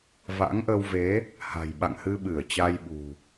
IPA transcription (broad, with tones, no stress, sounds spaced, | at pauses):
v a̰˧˥ ŋ ʔ ə˧ w v e˨˦ | h a̤˨˩ j ɓ a̰˧˨ ŋ h ɨ˧ ɓ ɨ˧˩ ə̯ t͡ɕ a˧ j ɓ ṳ˨˩